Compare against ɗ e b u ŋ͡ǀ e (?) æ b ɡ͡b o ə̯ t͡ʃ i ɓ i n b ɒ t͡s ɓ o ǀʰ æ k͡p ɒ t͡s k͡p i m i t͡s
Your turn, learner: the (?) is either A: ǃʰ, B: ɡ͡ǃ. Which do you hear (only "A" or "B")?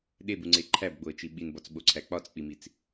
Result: A